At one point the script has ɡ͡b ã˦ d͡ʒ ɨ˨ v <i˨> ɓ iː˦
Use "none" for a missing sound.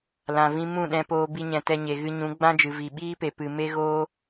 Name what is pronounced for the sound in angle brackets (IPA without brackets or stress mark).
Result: i˨